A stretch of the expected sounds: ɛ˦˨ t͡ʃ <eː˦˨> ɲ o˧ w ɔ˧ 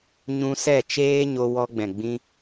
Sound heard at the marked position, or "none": eː˦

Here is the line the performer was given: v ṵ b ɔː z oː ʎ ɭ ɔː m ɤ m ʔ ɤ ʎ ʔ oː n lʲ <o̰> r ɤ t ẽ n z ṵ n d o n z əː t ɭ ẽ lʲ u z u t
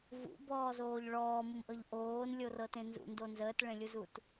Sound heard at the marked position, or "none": o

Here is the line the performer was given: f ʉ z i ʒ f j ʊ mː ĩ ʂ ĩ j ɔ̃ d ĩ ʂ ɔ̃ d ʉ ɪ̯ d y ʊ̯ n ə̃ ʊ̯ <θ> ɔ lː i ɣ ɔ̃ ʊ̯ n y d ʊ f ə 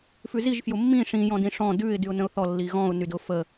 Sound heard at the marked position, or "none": θ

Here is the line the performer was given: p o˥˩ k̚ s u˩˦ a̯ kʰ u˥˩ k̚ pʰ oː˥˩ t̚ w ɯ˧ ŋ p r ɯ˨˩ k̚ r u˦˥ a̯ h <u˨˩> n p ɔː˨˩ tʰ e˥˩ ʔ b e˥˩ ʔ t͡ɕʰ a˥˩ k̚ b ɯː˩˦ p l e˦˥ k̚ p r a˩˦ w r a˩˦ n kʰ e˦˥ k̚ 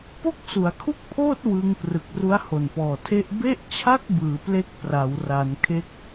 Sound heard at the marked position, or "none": o˨˩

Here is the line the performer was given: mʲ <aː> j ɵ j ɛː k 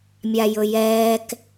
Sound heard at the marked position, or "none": a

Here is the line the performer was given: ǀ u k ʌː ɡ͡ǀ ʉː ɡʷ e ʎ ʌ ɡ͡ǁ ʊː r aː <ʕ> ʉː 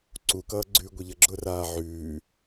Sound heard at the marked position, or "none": ʕ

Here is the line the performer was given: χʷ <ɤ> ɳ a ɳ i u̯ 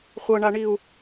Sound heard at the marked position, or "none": ɤ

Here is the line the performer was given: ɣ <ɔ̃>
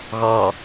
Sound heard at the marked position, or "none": ɔ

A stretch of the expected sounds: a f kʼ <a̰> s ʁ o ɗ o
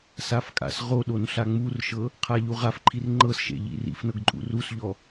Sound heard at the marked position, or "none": a̰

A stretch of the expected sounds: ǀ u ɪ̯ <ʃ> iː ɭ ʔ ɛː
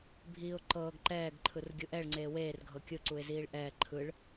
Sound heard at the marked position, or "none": z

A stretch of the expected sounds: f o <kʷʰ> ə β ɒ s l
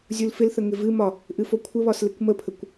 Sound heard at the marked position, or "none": kʷʰ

